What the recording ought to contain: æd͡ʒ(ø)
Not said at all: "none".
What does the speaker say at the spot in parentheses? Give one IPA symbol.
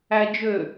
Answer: ø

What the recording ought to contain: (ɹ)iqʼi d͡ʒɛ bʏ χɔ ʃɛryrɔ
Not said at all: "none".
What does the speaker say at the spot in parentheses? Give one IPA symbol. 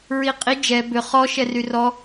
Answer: ɹ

